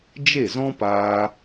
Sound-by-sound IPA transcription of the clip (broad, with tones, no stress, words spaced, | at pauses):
d͡ʒe˦˨zɔ̃˦paː˧